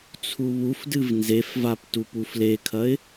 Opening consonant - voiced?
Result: no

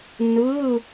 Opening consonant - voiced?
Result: yes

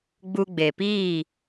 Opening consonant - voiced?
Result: yes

